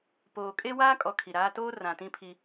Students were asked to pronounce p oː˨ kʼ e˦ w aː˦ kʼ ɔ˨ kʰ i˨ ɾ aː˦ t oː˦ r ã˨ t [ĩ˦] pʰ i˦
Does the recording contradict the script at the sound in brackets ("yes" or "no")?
no